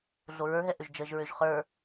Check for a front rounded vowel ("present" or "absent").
present